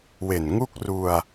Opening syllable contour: low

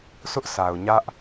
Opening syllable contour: high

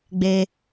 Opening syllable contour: low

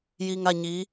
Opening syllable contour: low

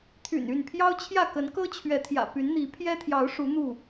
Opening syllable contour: low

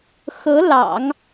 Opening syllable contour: rising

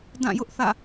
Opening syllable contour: falling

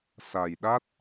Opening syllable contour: low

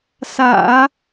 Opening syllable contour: low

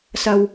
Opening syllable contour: low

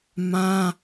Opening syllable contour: high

